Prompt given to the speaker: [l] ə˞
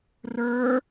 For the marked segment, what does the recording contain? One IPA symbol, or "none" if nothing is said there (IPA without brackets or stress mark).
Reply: r